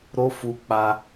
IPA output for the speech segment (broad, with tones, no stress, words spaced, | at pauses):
ɾo˦fu˧k͡pa˧